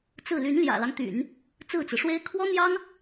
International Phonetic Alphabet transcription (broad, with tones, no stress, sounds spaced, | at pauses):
t͡s ɹ̩˥˩ l y˧˥ n l j ä̰˨˩ l ɑ˦ ŋ t̪ y̰˨˩˦ n | t͡s ɹ̩˥˩ t͡s ɹ̩˩ ʂ w e˥ ɪ̯ kʰ w ɔ˥ n̪ j ɑ˥ ŋ